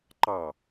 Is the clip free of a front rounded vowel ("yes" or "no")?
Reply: yes